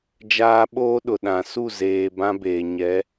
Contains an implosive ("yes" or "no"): yes